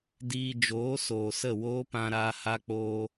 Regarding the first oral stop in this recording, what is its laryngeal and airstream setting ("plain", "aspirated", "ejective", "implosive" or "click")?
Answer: plain